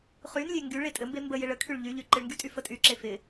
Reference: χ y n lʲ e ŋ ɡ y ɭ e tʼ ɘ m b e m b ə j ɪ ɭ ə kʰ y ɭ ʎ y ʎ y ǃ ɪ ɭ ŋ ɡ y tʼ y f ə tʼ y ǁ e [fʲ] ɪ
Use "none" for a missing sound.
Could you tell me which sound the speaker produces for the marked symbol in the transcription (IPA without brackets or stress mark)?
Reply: f